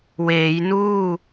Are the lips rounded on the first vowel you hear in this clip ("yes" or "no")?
no